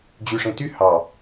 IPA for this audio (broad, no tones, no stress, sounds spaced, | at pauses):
d͡ʑ y ʂ ẽ t y h ɑ